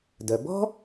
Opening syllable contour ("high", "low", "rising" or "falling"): low